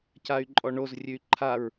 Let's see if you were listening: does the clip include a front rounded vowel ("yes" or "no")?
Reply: yes